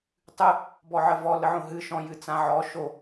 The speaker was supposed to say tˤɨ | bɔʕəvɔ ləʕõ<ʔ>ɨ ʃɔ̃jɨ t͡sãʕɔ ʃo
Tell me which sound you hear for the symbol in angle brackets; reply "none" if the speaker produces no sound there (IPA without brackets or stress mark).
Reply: ɦ